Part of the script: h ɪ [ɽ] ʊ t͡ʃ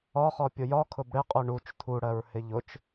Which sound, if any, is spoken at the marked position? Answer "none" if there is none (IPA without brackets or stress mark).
ʎ